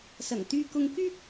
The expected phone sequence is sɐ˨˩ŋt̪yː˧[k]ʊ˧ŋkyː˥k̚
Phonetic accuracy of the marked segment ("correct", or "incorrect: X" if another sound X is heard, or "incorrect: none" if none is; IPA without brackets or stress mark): correct